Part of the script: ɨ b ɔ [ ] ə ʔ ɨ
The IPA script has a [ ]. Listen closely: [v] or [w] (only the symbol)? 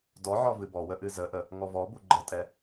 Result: w